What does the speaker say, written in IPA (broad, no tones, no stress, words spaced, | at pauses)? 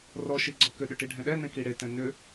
rɔʃi ɡ͡ǀɔkʏɗʏ ʈiɖʱɛ̃ɗɛnɛ̃ kiɽetɛ̃ nʏ